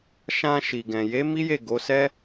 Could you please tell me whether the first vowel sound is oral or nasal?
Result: nasal